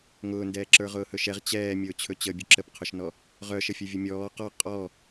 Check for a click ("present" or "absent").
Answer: present